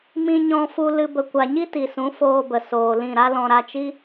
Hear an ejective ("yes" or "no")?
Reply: no